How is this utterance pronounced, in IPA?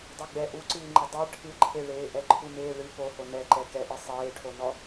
dˤɛɡ͡bɛ ʔuǀɨːŋ͡ǃɘ dˤe ʈʰɨǃʰeɭeː ʔɛǃʰumeːɭɨ poho nɛǃɛ kɛʔɨ sˤeːʈʰonɔ

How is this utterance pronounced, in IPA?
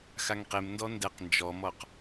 xaŋqem ndɔndɛq nd͡ʒɔmɔq

